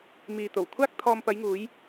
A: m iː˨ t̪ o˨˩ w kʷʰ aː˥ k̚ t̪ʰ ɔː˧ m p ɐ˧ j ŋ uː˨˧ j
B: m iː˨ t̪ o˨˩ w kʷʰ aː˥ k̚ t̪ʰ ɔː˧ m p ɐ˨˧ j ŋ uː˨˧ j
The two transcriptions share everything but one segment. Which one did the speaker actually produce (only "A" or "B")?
B